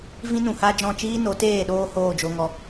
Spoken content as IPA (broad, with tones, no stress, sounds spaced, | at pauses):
v ĩ˦ n ũ˨ h a˦ d͡ʒ ɔ̃˦˨ t͡ʃ iː˦ n o˨˦ t eː˦˨ ɗ oː˧ h oː˦˨ d͡ʒ o˧ ŋ ɔ˧